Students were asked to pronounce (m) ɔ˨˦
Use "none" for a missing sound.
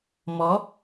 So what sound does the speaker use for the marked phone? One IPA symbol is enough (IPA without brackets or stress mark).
m